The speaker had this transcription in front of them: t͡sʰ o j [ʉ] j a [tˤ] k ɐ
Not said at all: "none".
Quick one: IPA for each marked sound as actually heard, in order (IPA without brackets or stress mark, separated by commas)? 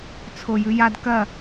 ʉ, d